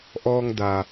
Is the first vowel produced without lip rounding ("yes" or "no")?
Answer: no